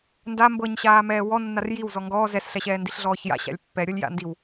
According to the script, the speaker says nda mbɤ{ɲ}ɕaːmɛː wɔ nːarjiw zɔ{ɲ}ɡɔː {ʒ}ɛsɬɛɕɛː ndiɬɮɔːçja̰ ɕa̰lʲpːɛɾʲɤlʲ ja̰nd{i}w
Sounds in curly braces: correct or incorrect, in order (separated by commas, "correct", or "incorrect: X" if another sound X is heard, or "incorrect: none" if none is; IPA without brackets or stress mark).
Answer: correct, incorrect: ŋ, incorrect: z, correct